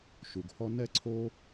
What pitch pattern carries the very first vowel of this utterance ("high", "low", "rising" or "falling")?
low